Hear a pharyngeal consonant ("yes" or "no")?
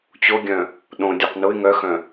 no